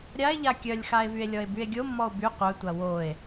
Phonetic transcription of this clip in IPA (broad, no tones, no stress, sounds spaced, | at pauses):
ɾʲ a e̯ ʎ a kʲ œ lʲ x a e̯ v y e̯ lʲ ɔ e̯ b y e̯ ɡʲ o mː ɔ o̯ b y qʷ œ tʷ a w o e̯